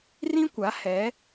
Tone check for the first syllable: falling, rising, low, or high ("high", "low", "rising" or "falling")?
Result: high